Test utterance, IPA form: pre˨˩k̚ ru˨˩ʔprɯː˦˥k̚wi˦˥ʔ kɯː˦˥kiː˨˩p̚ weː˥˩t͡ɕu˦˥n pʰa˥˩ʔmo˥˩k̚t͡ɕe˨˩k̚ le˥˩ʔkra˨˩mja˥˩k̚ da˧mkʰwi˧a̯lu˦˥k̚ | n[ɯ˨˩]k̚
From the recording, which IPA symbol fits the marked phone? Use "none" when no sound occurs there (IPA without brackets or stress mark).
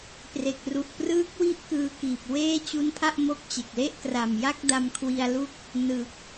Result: ɯ˨˩